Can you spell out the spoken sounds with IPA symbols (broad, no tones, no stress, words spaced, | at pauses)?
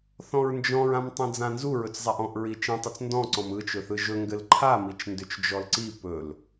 θɔ̃ɹnd͡ʒɔ̃ɹ ãmtˤĩd͡zãnzu ɹɵt͡szˤaʔɔ̃ʔ ɹit͡ʃĩtˤʏt͡s ndɔ̃ǀɔ̃m ɯt͡ʃɵθɯ ʒɵ ŋɡɘlǃʰamit͡ʃ ndʏt͡ʃd͡ʒɔlǀi pɵl